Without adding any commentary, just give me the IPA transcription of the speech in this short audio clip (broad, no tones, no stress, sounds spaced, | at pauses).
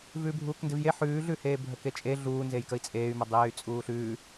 v ʉː bʱ uː k n d e v j e ħ ʉː ɮ ʉ h eː bʱ ə k e t͡ʃʼ e ɮ uː n z e j k ə i̯ t͡sʼ eː y̯ m ə dˤ eː y̯ t͡sʼ uː ɬ ʉː